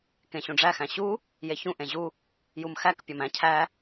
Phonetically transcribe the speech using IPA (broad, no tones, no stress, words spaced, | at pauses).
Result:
kẽɕũɖ͡ʐæ xæ̃ɕu | jeçũ ʔẽʑu | jumxæk pʲɒmæ̃ cʰæ